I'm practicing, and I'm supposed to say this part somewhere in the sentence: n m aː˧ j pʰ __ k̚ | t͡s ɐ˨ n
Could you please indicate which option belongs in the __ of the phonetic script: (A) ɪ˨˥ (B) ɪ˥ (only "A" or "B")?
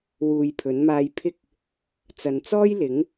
B